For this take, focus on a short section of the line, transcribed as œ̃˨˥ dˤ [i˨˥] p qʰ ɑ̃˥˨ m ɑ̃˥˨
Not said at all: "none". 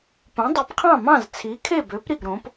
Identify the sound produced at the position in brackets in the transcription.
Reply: i˨˥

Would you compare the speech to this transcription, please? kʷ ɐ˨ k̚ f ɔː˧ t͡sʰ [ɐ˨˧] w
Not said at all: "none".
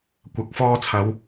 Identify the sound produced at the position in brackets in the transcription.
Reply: ɐ˨˧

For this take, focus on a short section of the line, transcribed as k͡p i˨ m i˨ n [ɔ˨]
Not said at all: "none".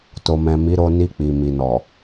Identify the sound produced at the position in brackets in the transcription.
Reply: ɔ˨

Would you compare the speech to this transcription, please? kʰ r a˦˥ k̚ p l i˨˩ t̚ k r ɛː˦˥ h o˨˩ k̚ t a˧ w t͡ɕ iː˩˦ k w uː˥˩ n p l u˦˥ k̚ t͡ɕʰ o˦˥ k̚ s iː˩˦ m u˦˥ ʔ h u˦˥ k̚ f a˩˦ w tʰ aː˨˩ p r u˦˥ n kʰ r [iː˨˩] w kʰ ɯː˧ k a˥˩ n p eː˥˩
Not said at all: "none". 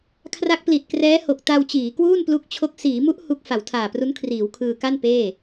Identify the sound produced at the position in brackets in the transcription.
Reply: iː˩˦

